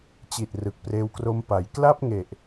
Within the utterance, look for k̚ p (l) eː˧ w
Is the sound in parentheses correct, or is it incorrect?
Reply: incorrect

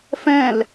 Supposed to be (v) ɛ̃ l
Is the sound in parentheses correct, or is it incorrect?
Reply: incorrect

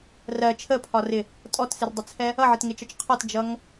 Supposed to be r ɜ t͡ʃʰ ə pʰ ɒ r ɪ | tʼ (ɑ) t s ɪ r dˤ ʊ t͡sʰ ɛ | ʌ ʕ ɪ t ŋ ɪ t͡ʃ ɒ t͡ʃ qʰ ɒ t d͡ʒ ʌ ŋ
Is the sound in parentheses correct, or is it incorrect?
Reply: incorrect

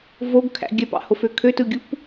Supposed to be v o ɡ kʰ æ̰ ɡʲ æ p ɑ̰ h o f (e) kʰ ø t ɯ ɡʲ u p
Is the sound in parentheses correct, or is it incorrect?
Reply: incorrect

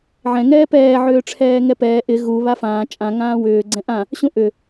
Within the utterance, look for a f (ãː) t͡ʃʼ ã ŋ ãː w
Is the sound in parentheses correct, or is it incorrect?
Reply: correct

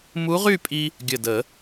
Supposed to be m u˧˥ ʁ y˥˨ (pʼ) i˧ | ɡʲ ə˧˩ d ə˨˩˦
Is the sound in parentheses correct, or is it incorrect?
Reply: correct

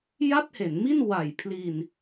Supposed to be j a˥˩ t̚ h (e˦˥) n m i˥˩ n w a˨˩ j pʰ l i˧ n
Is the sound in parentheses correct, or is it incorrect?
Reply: incorrect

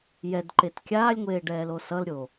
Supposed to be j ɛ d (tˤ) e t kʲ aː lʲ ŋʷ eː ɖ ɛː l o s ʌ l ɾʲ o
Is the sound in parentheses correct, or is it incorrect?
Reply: incorrect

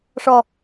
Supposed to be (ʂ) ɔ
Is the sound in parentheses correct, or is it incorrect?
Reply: correct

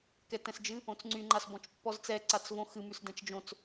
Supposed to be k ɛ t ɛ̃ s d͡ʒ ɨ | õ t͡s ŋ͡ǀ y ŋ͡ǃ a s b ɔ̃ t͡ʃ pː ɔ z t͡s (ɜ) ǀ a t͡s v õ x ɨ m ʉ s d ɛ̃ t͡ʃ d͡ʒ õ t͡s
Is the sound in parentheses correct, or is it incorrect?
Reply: incorrect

